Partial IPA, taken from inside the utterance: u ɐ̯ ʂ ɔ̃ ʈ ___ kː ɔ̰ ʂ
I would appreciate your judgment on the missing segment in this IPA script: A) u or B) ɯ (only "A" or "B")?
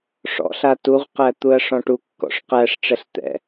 A